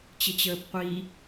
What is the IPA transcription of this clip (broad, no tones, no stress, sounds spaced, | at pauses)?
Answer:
t͡ɕ ɪ t͡ɕ əː p qʷ i